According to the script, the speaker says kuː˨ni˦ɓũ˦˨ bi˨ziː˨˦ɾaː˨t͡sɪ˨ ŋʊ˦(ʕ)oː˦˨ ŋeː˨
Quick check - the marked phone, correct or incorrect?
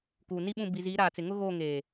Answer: incorrect